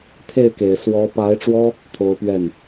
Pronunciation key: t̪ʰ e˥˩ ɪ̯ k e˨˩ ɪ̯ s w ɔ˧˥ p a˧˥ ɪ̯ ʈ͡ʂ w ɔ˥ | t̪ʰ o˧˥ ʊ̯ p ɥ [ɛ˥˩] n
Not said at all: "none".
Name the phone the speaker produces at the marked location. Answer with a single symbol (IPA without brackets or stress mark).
ɛ˥˩